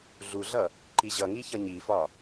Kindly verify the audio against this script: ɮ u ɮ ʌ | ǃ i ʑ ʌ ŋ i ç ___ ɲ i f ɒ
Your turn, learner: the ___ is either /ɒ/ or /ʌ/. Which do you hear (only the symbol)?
ʌ